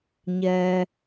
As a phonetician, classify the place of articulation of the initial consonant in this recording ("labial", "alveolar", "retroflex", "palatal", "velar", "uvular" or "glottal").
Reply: palatal